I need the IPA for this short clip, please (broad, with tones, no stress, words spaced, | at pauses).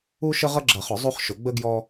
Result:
u˦ʃə˦ ʁʌ˦ɡ͡ǁʌ˨˩˦χʊ˨˩˦ zˤu˦χʃʊ˨˩˦ ɡ͡bə˦ɡjɔ˦